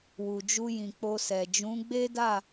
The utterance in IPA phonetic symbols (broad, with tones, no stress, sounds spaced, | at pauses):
w u˨ d͡ʒ u˧ j ĩ˨ k͡p o˧ s ɛ˨ d͡ʒ ũ˨˦ ɡ͡b e˦ d a˦˨